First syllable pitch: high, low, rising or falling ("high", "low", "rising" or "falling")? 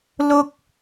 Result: high